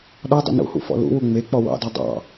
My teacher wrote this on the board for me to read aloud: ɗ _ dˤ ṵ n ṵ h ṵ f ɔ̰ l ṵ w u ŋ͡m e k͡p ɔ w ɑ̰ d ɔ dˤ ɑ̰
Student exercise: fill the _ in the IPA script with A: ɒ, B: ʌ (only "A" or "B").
A